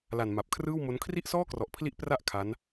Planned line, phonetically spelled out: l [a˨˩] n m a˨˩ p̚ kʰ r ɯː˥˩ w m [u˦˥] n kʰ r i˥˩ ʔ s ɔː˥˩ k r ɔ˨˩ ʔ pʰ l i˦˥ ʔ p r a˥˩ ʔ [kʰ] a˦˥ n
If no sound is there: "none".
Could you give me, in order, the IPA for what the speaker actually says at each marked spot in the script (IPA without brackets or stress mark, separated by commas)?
a˨˩, o˦˥, kʰ